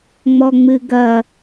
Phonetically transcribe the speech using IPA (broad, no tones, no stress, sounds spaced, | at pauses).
ŋ͡m ɔ ŋ͡m ɨ ɡ ɐ